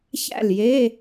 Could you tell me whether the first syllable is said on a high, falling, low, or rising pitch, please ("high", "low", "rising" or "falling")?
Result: falling